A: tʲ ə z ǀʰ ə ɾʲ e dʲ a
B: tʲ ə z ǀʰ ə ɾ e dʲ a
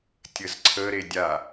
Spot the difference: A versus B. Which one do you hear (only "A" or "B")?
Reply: B